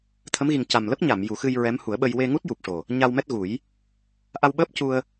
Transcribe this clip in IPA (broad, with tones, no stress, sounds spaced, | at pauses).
t̪ʰ ə˧˥ m ɣ i˨˩ ŋ c a˨˩ m l ə˦˥ k̚ ɲ a˨˩˨ m j u˨˩˦ x ɨ˧ j ɹ ɛ˧˥ m h u˨˩˦ ə̯ ɓ ə˧ j w e˧ ŋ u˦˥ t̚ j u˨˩ p̚ ʂ o˨˩ | ɲ a˧ w m ɛ˦˥ t̚ ɣ u˨˩˦ j | ʔ a˧ w ɓ əː˦˥ p̚ c u˧ ə̯